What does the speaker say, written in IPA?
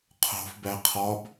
qʰ o̤ f b æ qʰ ɒ b

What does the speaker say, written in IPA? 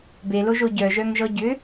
b e l o ʒ o ɟ œ ʒ œ ŋ ʒ ɔ ɟ ʏ

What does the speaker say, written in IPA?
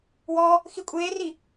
w ɔ | x i kʷʼ eː r i

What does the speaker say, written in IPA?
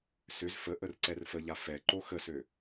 s ʏ z f ə ʔ ə r ǀ ɛ r f ə ʎ a f ɛ ǃ o x ə s ø

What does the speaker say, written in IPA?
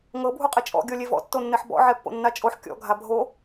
ŋ ɤ bʱ u qʼ i t͡ʃʼ ɔ̰ ɡʲ ɔ lʲ e v ɔ̰ tː o nː ɛ ħ b ɔ̰ ʕ ɛ pː o̰ nː a t͡ʃʼ o ħ kʲ ɔ̰ ɡʱ a bʱ o

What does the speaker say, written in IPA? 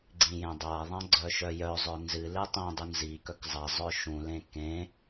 ɡ͡ǀ ĩ j ẽ dˤ a ðˤ ã ɡ͡ǀ œ ʃ œ j œ zˤ œ n z ɨ l ɨ tˤ ĩ dˤ u n z i k œ k zˤ a zˤ œ ʃ ũ l ẽ k ẽ

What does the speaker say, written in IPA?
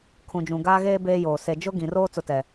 kʰ ũ˨ d͡ʒ ũ˨ ɡ aː˦ ɣ eː˦ b eː˦ j oː˨ s e˨ d͡ʒ ʊ˦ ɡ ĩ˨ r oː˦ t͡s ʊ˦ t ɛ˨

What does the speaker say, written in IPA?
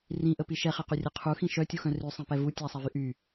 r ĩ ʔ ə p i ʃ ɛ χ e q y rʲ ɛ qʰ u x ĩ ʃ œ tʲ u x œ̃ r y sˤ ĩ p ɛ v u tʲ a sˤ ɛ v y ʔ y

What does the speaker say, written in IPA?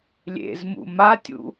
lʲ ḛ z m ṵ m a tʲ ṵ

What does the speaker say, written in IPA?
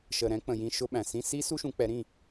ʃ ə˨ ɾ ɛ̃˨˦ k͡p ə̃˨ j ĩ˧˥˧ ʃ ʊ˥ ɓ æ̃˨ s ĩ˧˥˧ s i˥ s u˥ ʃ ũ˨˦ k͡p ɛ˨˦ ɾ ĩ˥˨

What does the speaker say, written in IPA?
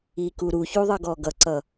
i k u ɾ u ç u ðˤ ʌ ɡ ɔ ɡ ʌ ǀ ʌ

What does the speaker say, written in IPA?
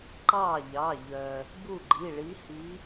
ǃ ɑ˥˩ ʎ ɑ˩˧˩ ʎ œ˩ | b u˥˩ ɡ͡ǃ i˩˧˩ ɭ i˨˦ h i˨˦

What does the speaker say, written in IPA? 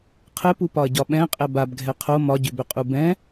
qʰ ɘ p u p ɒ ɐ̯ ɟ ɒ ɓ ɛ̃ qʼ ɛ b a b ɡʱ ɛ qʰ o m ɒ ɟ ʏ b ʏ qʼ u b ɛ̃

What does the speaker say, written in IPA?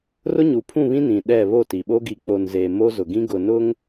r ʊ˦ ɲ u˨ pʰ ũ˦˨ β ĩ˦ n ĩ˨ ɗ ɛ˦˨ β o˦˨ t i˨ ɓ o˦ ɡ i˨ k͡p o˨ n z eː˨ m o˦ z ʊ˨ ɡ ĩ˦ ɡ ʊ˨ n ʊ˦ ŋ

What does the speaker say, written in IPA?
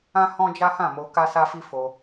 ã˦ h ɔ̃˦ d͡ʒ a˦ h ã˦˨ m o˧ k a˦ s a˦ f i˦ f o˧

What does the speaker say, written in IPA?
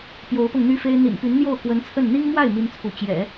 p j o˧˥ ʊ̯ p ɤ˧ ŋ n̪ y˥ f e˥ ɪ̯ n̪ ḭ˨˩ n p y˧˥ n n̪ j o˥˩ ʊ̯ k w ə˧˥ n t͡sʰ ə˥˩ n n̪ i˥ ŋ m w a˥˩ ɪ̯ m i˥ n t͡sʰ u˧˥ t͡ɕ j ɛ̰˨˩˦

